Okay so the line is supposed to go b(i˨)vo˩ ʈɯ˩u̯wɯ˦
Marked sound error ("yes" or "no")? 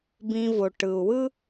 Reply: yes